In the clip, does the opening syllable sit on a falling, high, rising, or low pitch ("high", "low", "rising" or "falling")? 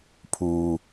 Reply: low